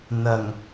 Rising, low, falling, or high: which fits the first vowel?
low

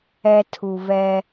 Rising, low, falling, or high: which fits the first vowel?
high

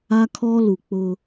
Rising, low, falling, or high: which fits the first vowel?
high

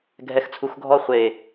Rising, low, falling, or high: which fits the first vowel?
low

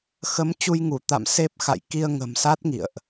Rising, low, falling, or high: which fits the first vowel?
rising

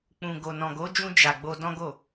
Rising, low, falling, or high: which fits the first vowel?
low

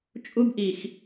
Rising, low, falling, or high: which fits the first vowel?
high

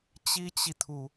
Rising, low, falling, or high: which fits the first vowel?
high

